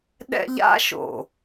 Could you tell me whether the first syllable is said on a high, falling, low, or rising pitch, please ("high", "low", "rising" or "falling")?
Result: high